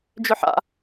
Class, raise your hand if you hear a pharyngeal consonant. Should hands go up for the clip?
yes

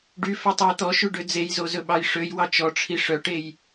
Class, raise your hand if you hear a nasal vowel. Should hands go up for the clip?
no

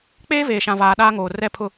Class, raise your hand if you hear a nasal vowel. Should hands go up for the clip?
yes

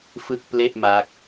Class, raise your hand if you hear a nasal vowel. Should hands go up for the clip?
no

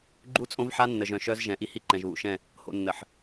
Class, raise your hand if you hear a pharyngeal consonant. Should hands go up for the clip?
yes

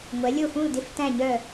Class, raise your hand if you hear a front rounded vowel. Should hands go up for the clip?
yes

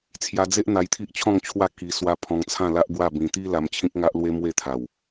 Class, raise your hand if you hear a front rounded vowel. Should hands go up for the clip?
no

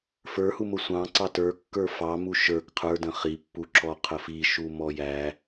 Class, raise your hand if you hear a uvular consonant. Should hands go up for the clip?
yes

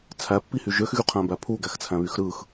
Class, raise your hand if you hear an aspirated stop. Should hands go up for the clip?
yes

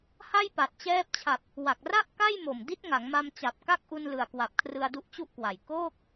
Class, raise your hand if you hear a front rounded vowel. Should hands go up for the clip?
no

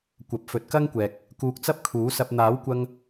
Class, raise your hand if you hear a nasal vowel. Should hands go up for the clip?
no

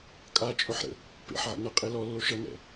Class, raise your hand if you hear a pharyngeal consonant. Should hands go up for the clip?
yes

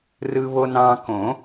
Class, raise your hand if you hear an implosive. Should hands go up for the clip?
no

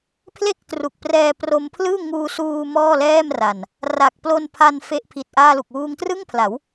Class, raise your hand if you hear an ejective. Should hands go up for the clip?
no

